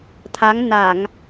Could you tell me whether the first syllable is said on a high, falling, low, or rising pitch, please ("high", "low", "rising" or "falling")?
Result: rising